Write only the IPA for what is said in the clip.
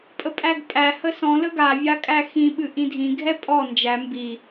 pʼ ə pʼ æ ɡ pʼ æ h ə s ɔ̃ l ə ɡ a vʲ a kʼ æ x ĩ ɓ ɨ ʔ ĩ dʱ ĩ ɡʱ ɛ pʼ ɔ n d͡ʒ æ m b i

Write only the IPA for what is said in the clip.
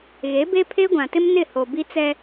ɣ e˨˦ b e˦ pʰ e˦ ɡʷ ã˨ t ɪ˦ m n ɪ˦˨ h o˨ b i˦ t͡s ɛ˦

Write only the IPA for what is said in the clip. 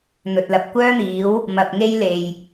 n̪ ɵ˨ t̚ l ɐ˨ p̚ kʷ œː˥ n̪ iː˨˥ w | m ɐ˨ p̚ ŋ e˧ j l e˨ j

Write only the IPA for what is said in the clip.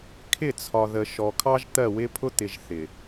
kʰ ɪ˦˨ t͡sʰ ɒ˨ ð ə˨ ʃ ɔ˨ kʰ ɑ˦ ʒ t̪ ɜ˦˨ w ɪ˦ pʰ ʊ˦ t̪ ɪ˨ ʒ θ ɪ˨

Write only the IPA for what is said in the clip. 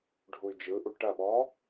ɖʱ u y̯ d͡ʒ ɯ ʔ u ʈ ɐ ɓ ɔ

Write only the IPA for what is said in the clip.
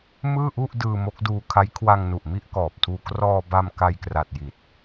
m ɯː˥˩ ʔ u˥˩ ʔ d ɯː˧ m o˦˥ k̚ d uː˧ kʰ a˦˥ j kʰ w a˧ ŋ n u˨˩ ʔ m i˥˩ ʔ k ɔː˨˩ p̚ tʰ uː˧ k r ɔː˧ b a˧ m k a˧ j k r a˨˩ t̚ j i˨˩ t̚

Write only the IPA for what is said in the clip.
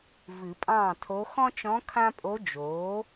v ɨ˨˩˦ pʼ ɑ̃ː˥˩ tʰ o˧˥ x ɔ̃˥ t͡ʃ ɔ̃˧˥ kʰ ã˥ pʼ o˧˥ d͡ʒ oː˩˥

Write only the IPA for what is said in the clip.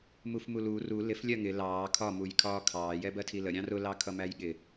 m u f m u l u r u l ɪ f lʲ ɜ ŋ ɪ l ɑː kʰ ɒ m u j kʰ ɒː kʰ ɑː j ɛ b ɜ tʰ i l ə ɾʲ ɑ̃ r ʊ l ɑ kʰ ʌ m æ j ɠ ɪ

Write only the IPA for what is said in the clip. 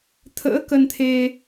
t̪ʰ ə̰ː˧˥ k ə˧ n t̪ʰ e˧

